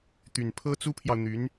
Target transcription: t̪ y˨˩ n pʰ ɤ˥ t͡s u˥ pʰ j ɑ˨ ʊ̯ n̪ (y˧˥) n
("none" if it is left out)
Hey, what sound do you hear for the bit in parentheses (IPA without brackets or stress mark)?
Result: y˧˥